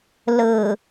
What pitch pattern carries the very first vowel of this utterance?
low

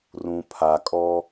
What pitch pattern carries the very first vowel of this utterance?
low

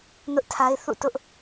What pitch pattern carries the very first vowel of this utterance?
high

